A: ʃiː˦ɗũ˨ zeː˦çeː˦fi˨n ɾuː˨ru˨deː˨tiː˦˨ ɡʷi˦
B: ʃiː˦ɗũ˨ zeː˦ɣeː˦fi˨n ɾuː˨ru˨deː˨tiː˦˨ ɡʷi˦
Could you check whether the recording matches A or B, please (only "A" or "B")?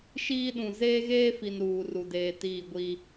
B